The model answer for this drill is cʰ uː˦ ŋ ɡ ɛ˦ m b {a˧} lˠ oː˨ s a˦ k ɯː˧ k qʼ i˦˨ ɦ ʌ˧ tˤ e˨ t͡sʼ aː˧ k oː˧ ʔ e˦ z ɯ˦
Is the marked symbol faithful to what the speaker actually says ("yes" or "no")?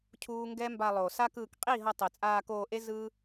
yes